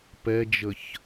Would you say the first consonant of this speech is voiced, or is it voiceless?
voiceless